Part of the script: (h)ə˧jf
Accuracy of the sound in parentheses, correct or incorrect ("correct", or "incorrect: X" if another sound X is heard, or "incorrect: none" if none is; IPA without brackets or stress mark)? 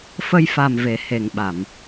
incorrect: f